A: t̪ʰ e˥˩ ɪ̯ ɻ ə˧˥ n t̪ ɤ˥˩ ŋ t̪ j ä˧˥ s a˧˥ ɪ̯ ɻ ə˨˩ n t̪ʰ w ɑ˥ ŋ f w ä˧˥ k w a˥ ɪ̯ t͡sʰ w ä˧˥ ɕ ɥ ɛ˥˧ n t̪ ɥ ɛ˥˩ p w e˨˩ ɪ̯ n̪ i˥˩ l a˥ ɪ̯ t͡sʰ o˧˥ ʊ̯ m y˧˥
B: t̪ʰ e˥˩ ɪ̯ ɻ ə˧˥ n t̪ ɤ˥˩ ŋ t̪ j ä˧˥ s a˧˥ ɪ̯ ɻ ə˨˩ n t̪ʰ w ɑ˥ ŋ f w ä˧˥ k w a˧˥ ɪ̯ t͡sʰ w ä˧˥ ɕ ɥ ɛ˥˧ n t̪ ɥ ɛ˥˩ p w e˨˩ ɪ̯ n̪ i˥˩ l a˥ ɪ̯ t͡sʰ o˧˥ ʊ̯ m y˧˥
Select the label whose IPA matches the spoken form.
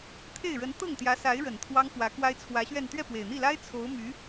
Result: A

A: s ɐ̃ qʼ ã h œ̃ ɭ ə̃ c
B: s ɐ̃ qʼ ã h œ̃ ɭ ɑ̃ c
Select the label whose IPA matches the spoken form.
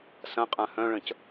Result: A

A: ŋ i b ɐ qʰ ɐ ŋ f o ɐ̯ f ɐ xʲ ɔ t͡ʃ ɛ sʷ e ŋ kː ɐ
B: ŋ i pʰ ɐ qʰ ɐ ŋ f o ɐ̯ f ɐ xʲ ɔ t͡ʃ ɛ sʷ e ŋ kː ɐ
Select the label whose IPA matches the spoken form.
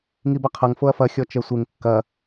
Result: A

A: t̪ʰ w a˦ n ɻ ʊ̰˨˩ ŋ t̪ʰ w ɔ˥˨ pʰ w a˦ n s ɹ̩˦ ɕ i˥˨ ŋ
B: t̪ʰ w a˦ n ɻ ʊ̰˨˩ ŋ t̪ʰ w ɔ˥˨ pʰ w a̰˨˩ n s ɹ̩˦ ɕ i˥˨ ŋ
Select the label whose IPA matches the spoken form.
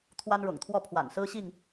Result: B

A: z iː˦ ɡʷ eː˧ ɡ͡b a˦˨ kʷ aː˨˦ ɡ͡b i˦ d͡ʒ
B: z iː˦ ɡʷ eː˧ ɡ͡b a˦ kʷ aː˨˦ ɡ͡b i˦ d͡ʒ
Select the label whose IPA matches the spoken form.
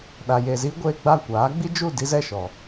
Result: A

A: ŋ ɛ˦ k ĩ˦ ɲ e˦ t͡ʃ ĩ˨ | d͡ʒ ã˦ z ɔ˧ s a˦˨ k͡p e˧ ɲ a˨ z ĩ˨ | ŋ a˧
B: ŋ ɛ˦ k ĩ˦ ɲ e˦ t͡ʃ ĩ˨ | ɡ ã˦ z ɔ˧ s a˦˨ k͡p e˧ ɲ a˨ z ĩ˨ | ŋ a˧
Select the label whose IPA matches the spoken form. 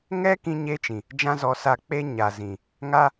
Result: A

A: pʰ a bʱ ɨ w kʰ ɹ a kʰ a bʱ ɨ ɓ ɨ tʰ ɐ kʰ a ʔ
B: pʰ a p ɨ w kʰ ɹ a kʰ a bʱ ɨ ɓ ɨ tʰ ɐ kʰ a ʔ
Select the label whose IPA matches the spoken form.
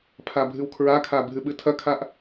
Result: A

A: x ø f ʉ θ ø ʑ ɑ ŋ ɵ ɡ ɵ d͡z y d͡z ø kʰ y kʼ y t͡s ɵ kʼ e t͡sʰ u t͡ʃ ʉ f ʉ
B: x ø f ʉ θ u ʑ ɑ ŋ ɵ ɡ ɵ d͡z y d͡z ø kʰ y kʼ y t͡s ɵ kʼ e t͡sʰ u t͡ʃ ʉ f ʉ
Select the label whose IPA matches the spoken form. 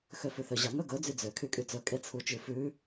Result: A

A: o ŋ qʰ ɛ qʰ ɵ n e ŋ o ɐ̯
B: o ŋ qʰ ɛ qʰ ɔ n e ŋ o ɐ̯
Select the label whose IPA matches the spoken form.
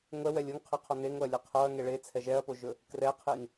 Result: B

